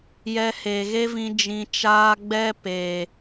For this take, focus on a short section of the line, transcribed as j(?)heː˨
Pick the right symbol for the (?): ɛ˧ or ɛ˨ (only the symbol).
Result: ɛ˧